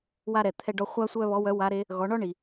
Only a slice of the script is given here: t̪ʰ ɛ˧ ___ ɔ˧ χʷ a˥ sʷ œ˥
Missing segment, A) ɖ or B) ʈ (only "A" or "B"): A